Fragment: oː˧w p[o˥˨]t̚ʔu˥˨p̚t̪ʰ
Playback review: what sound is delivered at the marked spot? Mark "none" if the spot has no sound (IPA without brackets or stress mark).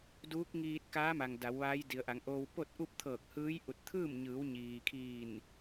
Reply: o˥˨